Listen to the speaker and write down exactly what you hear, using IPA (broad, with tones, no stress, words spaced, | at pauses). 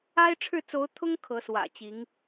a˥ɪ̯ ʈ͡ʂʰɻ̩˥˩t͡so˧˥ʊ̯t̪ʰʊ˥ŋ kʰɤ˧˥swä̰˨˩t͡ɕi˧˥ŋ